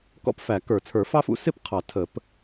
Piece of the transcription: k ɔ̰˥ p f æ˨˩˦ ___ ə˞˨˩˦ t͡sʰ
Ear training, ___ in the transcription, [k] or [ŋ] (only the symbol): k